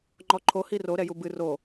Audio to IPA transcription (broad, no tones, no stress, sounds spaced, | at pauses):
ŋ͡ǃ ɔ ǃʰ o h i r o ɾ ɛ j u b ɨ r o